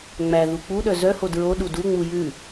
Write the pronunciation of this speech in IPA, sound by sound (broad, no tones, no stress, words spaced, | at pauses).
ŋ͡mæ ðuk͡puɗœ zœho dɹo ɗuduŋ͡mu jʉ